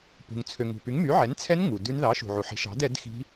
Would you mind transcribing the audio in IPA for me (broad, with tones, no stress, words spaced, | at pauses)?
pṳ˨ŋ t͡sʰø˨ŋṳ˨py˨˥ŋ my˨˥ʕɛ˨˥nt͡sʰɛ˦˥n ŋu˨dʉ˦˥n ðɑ˨˥ʃṳ˨ʕu˨ħi̤˨˥ ʃɑ̤˨˥d ɛ˨˥dxi̤˦˥